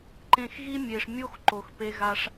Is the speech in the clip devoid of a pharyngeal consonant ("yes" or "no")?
yes